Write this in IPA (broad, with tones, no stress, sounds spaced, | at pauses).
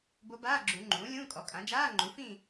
b o˧˥ b aː˧˥˧ ɡ͡ǁ u˨˩˦ ŋ͡ǃ ũː˩˥ lʲ ũː˧˥˧ kʼ ɔ˩˥ kʼ ã˩˥ d͡ʒ aː˧˥˧ ŋ͡ǃ u˩˥ f ĩ˥˨